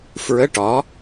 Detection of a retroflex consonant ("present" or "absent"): present